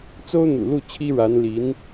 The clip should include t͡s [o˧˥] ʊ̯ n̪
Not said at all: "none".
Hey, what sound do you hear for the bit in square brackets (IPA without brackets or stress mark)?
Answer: o˥